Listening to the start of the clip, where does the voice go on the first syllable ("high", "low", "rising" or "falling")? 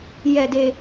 low